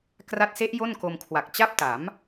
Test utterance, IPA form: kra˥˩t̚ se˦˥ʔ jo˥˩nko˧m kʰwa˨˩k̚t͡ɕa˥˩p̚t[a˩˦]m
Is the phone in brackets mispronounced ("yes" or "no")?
no